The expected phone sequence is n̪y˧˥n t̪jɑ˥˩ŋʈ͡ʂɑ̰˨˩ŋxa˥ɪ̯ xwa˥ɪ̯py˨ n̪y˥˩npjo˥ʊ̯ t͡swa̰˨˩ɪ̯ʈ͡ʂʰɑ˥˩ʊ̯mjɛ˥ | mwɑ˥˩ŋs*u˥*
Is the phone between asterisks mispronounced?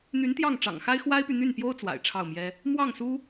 no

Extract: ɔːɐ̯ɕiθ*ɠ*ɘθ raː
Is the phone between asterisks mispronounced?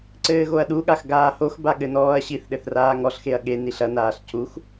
yes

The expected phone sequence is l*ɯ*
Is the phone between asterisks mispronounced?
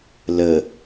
yes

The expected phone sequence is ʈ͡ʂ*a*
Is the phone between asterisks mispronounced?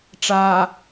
no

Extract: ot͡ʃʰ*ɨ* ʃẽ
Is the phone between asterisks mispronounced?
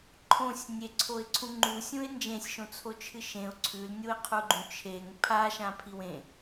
no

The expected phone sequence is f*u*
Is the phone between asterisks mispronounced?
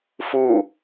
no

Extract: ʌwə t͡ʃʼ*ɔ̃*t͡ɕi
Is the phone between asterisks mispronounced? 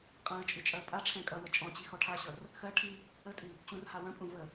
no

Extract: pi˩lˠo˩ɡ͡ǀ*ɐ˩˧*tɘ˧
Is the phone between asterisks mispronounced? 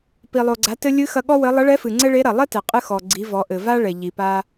yes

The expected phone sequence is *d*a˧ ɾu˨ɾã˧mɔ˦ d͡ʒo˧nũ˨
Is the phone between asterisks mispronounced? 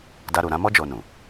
no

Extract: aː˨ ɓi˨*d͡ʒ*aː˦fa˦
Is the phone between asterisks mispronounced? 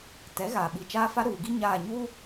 yes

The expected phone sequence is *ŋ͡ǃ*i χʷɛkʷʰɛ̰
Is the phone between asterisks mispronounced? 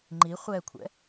no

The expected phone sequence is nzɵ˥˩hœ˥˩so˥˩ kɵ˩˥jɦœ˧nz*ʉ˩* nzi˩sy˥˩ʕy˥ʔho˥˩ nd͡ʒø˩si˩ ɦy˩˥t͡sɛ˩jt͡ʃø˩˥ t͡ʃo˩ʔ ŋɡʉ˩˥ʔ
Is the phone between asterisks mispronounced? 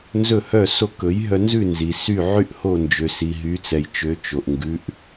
yes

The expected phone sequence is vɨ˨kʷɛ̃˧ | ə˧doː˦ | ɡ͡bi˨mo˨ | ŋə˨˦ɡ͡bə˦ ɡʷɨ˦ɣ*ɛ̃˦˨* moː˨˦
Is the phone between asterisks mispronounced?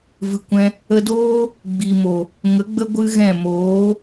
no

